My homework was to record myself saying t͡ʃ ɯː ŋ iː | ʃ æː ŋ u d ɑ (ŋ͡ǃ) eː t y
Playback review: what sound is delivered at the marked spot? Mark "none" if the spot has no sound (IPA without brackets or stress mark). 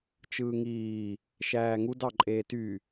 ǃʼ